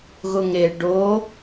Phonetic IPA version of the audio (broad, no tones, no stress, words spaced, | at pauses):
ɣʊŋe ɖo